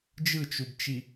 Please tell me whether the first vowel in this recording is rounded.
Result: no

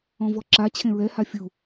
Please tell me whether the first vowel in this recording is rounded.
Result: yes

